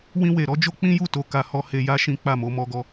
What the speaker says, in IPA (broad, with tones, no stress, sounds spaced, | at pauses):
w ĩ˧ w e˨ ɾ ɔ˨˦ d͡ʒ o˦ k͡p ĩ˦ j u˦˨ t o˧ k a˧ h ɔ˦ h e˧ j a˦ ʃ ĩ˦ k͡p a˦˨ m o˧ m ɔ˧ ɡ ɔ˧